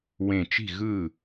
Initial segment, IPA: w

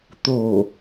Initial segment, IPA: t̪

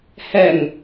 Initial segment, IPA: h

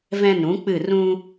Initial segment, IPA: v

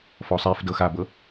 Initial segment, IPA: f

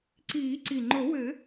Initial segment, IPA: ǀ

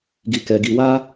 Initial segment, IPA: ɡ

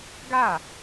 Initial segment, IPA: ɡ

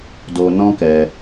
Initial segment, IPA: d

